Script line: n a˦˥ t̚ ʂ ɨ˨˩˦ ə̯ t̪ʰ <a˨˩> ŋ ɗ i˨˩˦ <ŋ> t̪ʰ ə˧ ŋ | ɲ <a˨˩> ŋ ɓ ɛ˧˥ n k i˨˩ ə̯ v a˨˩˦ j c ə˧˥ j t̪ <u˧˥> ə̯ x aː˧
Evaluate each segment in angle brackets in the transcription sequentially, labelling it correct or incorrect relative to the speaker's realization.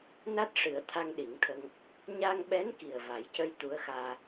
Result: incorrect, correct, incorrect, correct

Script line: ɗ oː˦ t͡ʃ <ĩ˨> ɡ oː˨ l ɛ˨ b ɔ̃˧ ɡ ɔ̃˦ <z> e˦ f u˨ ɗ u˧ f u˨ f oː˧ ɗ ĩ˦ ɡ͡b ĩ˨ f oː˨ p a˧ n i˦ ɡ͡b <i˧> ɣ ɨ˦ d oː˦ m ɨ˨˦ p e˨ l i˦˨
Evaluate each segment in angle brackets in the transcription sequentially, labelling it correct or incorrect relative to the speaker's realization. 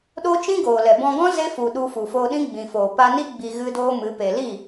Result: incorrect, correct, correct

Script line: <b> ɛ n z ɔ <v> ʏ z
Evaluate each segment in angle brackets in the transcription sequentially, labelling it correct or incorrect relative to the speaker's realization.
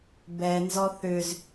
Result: correct, incorrect

